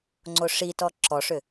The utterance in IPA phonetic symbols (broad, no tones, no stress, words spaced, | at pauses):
ŋ͡ǀoʂitɔ ǁɔʂʏ